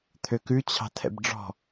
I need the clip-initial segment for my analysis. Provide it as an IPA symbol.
t̪ʰ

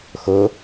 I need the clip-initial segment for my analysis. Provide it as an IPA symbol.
x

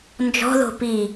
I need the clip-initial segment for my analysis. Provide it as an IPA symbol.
n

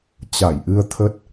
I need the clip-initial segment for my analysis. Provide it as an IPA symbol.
t͡ɕ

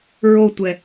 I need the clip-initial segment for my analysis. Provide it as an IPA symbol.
ɹ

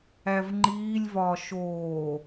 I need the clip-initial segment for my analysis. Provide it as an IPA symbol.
æ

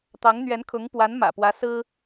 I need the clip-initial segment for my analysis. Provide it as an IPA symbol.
t̪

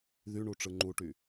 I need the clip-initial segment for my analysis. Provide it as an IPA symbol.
ð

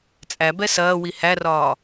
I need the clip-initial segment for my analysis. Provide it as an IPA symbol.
t͡sʼ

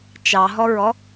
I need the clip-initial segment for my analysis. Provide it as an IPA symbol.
t͡ʃ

